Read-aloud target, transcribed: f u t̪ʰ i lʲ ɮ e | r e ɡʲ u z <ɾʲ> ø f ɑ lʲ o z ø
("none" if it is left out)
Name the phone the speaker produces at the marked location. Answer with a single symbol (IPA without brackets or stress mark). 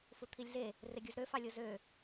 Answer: ɾ